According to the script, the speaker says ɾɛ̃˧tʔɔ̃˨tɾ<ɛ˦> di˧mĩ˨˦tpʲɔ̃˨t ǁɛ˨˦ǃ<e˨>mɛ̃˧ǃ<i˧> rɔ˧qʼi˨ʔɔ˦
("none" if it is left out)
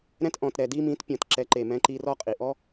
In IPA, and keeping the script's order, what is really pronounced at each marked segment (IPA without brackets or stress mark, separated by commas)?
ɛ˨, e˨, i˧